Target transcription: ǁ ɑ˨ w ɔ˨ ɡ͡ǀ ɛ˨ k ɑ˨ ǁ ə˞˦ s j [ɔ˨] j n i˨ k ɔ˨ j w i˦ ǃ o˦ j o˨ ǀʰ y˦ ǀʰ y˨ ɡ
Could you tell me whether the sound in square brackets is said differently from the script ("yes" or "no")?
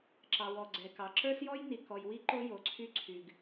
yes